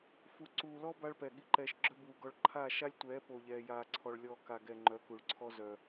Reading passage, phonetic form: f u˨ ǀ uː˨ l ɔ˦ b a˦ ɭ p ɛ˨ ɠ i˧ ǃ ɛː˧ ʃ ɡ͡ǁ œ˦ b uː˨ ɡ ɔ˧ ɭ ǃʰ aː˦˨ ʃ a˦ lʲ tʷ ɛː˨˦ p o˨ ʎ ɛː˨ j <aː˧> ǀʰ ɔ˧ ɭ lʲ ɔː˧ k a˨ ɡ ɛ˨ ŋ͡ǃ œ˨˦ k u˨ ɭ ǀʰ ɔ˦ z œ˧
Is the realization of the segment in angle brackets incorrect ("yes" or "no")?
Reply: no